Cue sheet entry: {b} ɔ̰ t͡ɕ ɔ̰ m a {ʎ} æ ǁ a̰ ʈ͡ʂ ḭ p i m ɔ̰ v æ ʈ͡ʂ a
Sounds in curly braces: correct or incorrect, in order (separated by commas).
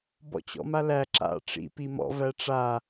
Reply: correct, incorrect